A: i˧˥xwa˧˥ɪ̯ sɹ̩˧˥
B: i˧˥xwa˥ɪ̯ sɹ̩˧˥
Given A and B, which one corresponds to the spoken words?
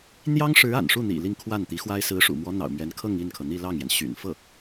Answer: B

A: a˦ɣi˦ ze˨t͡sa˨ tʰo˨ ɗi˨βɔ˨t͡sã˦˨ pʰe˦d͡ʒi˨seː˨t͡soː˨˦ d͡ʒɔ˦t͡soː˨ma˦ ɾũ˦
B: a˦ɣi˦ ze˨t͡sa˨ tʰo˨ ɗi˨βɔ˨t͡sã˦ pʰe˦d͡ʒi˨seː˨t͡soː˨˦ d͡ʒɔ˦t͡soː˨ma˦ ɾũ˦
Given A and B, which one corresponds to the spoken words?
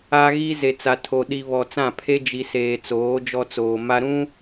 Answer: A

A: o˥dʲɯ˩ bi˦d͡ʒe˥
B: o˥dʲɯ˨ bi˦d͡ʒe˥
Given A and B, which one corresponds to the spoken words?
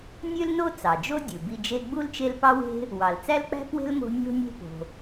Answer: A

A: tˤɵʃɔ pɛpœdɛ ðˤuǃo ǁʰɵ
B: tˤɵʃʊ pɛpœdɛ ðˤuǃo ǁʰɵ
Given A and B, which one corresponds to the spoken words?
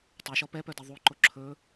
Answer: A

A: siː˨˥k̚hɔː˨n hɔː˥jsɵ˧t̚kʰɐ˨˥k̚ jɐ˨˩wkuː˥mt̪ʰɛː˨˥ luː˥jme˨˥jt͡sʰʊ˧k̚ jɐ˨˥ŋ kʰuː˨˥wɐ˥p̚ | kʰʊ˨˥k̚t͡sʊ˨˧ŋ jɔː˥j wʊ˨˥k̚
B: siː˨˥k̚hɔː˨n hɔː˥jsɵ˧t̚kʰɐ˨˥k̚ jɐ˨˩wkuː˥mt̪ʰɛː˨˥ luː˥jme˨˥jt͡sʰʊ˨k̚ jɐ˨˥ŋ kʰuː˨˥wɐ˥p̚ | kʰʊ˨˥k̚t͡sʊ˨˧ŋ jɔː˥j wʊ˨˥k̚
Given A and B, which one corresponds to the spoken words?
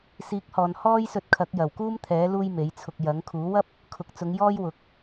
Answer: A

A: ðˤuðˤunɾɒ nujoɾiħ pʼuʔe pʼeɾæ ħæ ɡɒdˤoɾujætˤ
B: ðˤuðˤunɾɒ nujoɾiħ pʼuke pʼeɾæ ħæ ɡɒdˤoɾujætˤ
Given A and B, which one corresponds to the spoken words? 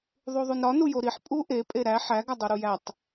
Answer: A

